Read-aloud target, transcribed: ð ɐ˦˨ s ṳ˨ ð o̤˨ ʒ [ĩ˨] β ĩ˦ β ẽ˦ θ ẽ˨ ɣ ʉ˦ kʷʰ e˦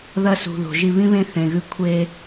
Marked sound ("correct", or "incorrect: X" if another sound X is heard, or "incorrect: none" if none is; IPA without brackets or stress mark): incorrect: i˨